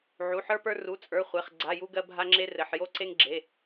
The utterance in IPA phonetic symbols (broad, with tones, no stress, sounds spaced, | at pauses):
ʕ u˩˧˩ ħ ə˞˧ p ə˞˧ r u˩˧˩ t͡sʼ ə˞˩˧˩ χʷ e˩˧˩ χ ɡ͡ǀ a˩˧˩ j u˧ ɡ ɜ˧ bʱ a˧ ŋ͡ǁ e˧ r ɘ˩˧˩ ħ j o˧ ǀ e˧ ŋ ɡ͡ǁ e˩˧˩